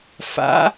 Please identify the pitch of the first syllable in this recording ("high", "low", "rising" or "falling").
rising